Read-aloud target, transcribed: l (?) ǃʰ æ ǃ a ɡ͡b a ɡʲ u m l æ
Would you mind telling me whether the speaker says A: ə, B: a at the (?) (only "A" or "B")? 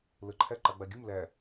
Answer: A